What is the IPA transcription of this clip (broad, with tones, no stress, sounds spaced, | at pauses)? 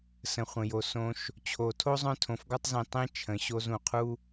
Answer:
s ə̃˩ χʷ ə̃˩ j o˩ s õ˨ ʃ | t͡ɕʰ o˩ tʰ o˥ zˤ œ̃˦ tʰ õ˨ f ɡ ɔ˦ tˤ z ĩ˨ tˤ ĩ˥ t͡ʃʰ ə̃˨ ɕ o˦ z ũ˩ qʰ u˦